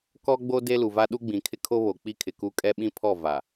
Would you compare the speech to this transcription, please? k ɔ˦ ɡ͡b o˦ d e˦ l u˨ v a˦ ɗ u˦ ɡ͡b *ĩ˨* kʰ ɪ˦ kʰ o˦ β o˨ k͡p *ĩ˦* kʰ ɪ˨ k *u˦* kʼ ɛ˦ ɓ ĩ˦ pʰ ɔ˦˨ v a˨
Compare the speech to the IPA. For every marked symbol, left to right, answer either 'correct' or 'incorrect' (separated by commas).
correct, incorrect, correct